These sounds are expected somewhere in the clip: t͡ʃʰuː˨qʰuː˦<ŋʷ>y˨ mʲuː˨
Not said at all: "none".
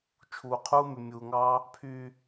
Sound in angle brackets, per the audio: m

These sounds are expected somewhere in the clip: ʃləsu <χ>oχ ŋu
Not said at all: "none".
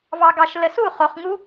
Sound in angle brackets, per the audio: χ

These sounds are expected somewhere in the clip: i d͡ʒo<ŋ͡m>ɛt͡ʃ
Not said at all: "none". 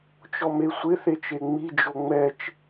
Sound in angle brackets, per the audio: ŋ͡m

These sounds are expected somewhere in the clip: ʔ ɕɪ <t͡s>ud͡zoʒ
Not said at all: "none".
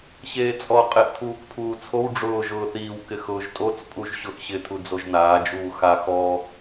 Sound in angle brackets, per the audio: tʰ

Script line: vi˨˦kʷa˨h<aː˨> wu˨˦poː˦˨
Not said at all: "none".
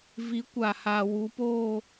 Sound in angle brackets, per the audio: a˨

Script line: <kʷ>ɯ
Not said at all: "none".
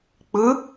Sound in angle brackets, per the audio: k͡p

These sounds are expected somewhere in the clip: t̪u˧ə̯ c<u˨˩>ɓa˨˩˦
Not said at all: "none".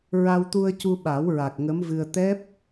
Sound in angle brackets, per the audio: u˧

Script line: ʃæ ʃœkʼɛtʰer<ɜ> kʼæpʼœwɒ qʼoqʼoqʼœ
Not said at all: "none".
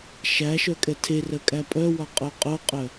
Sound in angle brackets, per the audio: ɜ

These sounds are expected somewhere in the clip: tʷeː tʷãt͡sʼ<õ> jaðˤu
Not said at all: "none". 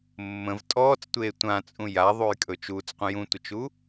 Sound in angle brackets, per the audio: ũ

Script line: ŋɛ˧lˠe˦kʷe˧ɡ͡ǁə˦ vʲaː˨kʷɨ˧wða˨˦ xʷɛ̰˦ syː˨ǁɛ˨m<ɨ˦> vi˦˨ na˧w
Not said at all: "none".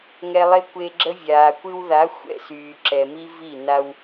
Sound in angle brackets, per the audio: i˦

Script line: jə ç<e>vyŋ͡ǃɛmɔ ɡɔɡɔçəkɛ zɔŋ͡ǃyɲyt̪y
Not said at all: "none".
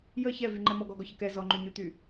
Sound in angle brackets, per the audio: ɛ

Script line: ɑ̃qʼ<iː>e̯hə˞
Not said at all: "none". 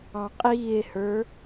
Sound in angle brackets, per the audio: iː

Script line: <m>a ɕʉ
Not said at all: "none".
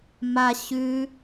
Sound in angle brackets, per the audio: m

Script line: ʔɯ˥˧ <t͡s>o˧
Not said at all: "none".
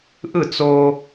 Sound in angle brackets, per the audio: t͡s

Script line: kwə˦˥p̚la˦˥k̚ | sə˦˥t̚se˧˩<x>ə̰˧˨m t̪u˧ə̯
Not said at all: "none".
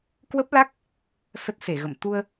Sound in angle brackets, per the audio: ɣ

